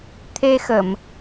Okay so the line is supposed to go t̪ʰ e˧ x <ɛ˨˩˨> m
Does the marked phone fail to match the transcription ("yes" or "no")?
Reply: yes